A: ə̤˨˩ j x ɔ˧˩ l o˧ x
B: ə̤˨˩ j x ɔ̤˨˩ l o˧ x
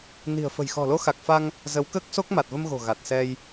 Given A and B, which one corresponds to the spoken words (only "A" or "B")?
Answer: B